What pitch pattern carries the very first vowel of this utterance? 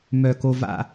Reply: low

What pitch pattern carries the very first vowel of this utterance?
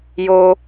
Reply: high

